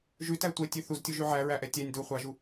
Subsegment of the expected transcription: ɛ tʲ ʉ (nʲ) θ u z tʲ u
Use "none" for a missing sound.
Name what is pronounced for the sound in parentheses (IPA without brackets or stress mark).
none